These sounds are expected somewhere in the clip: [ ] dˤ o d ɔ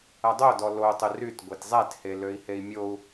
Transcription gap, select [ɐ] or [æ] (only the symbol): ɐ